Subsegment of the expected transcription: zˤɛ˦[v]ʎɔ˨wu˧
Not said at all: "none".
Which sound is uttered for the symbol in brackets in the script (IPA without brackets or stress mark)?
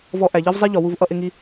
none